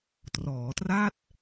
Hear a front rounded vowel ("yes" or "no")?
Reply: no